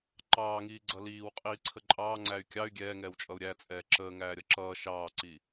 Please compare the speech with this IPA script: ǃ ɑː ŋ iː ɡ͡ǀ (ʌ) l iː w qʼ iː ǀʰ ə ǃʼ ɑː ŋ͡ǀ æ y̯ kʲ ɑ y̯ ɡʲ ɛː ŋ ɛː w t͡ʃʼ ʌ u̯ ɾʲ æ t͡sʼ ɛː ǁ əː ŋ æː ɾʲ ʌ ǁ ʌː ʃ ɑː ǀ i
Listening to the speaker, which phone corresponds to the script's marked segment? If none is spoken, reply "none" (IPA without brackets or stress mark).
ʌ